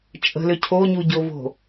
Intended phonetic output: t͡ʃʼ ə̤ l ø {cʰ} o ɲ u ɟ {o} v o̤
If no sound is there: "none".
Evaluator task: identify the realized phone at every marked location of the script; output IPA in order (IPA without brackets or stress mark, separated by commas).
cʰ, o